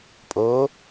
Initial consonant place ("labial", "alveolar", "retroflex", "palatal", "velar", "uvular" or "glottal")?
labial